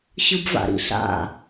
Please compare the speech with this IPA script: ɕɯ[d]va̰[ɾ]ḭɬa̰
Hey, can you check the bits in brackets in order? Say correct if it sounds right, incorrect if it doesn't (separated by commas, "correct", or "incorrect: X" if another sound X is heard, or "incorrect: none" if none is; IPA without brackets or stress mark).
incorrect: b, correct